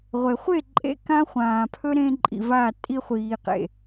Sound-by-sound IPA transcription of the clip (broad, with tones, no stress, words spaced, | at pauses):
ʁʷe˨χʷe˦˨ ǃʼḛ˦ kã˦χʷãː˨ pʰɵ˦ ɾẽ˧ ǃʼḭ˨va˦˨ tʼi˧χʷiː˨qḛ˨